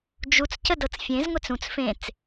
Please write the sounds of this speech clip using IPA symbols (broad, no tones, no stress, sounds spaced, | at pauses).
d͡ʒ u t͡s c ə d ɤ t͡s fʲ ẽ z ŋʷ e t͡s ũ t͡s f ẽ t͡s